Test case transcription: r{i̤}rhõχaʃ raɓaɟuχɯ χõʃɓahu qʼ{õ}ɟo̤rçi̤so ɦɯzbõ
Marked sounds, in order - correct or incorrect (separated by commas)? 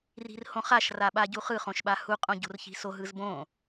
correct, correct